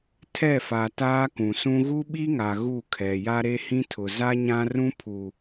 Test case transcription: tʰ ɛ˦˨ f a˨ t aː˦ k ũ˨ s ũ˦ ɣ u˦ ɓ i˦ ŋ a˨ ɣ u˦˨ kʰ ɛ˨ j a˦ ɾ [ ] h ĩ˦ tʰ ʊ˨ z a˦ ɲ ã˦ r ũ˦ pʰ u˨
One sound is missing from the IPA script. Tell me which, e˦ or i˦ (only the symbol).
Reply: e˦